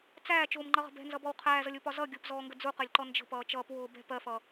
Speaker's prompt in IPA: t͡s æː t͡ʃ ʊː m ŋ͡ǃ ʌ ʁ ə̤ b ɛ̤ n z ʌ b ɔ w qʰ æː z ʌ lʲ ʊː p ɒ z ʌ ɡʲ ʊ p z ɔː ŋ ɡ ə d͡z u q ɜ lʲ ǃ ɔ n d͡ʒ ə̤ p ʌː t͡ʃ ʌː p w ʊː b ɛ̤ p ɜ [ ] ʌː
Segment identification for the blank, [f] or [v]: f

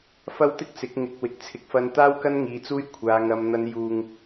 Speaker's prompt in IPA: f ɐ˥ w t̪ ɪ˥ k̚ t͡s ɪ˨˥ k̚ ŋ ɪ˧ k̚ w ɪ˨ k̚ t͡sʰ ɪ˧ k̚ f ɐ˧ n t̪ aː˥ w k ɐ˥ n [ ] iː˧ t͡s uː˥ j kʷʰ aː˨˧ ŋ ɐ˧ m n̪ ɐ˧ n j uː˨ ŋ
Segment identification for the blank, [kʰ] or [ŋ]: ŋ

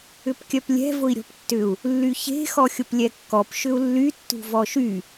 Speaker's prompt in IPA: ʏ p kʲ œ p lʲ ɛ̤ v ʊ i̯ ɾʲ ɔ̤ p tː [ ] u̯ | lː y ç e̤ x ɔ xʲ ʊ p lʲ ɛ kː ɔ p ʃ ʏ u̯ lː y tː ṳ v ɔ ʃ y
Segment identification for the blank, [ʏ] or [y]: ʏ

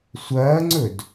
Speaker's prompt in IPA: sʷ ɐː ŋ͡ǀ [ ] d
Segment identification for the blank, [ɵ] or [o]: ɵ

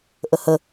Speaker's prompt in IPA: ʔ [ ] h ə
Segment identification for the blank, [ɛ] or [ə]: ə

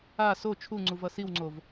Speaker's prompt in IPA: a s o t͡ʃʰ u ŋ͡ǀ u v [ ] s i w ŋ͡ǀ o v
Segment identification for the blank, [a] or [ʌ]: ʌ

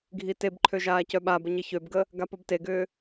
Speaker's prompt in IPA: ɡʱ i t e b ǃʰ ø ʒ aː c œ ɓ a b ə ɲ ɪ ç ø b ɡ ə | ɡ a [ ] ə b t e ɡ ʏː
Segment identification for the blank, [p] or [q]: p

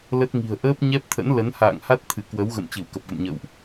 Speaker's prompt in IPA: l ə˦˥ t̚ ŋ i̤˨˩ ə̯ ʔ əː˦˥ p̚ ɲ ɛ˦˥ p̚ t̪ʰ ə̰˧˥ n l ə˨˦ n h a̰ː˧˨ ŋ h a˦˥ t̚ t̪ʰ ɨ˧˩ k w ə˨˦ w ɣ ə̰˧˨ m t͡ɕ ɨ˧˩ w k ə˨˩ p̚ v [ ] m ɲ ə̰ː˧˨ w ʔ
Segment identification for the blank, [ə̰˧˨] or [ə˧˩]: ə̰˧˨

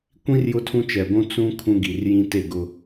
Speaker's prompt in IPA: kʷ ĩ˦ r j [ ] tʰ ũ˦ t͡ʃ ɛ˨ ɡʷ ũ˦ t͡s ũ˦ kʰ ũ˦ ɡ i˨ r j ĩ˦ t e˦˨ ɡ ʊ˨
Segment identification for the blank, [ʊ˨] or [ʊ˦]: ʊ˦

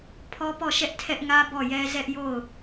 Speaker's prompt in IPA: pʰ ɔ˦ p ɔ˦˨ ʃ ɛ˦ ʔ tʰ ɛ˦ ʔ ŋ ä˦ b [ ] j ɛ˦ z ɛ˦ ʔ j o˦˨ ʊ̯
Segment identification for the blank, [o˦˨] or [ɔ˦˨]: ɔ˦˨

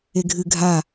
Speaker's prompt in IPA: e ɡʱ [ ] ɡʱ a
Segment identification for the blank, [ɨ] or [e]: ɨ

